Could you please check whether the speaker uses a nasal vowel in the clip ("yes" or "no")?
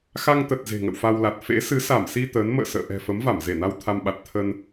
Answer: no